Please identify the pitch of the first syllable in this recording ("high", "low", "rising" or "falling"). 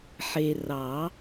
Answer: low